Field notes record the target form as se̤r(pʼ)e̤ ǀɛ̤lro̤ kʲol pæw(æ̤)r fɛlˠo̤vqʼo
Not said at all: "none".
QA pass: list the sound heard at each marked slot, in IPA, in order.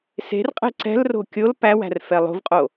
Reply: qʼ, æ̤

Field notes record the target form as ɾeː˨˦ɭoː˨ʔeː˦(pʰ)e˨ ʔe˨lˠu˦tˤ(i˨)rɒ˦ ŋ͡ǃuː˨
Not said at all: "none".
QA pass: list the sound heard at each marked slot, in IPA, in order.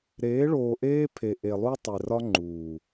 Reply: pʰ, e˨

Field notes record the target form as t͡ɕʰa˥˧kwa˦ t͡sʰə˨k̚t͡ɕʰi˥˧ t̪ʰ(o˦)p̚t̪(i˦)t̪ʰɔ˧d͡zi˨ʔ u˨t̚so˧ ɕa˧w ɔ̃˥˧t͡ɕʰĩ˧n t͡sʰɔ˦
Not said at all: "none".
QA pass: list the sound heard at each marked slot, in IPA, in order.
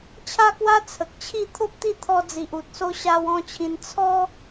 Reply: o˦, i˥˧

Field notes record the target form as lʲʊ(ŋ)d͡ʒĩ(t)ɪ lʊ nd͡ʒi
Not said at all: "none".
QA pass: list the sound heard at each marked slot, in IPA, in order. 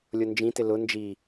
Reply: n, t

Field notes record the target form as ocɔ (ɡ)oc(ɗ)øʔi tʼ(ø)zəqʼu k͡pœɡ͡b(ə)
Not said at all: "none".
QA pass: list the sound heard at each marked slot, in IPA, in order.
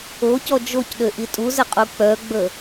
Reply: d͡ʒ, ɗ, u, ə

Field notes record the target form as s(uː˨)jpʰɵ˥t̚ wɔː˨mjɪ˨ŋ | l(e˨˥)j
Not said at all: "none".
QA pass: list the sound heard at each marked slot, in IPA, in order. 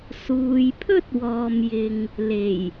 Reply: uː˨, e˨˩

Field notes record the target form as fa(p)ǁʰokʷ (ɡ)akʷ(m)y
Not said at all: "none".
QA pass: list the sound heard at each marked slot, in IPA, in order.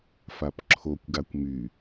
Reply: p, ɡ, m

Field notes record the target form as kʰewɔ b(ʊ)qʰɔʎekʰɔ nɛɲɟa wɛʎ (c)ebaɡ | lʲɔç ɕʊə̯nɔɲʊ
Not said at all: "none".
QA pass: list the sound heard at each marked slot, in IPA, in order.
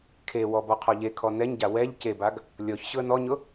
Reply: ɔ, c

